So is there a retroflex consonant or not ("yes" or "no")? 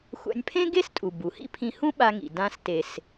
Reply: no